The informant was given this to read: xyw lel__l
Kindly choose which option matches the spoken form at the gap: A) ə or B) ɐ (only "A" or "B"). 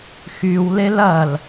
B